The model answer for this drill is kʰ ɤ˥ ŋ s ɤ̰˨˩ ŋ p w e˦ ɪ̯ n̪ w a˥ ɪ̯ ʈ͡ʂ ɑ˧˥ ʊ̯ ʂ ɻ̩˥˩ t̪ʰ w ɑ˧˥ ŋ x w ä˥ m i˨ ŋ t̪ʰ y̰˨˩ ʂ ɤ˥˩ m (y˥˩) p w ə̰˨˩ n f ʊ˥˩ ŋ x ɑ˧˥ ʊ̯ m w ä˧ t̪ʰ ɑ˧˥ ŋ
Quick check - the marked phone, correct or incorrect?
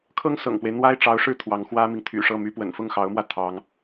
incorrect